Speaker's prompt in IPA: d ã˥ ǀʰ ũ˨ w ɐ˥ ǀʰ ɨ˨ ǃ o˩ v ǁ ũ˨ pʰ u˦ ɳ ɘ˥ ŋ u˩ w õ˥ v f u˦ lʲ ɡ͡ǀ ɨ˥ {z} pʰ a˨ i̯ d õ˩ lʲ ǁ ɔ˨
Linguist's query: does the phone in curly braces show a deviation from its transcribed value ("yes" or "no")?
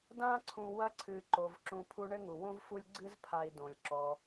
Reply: no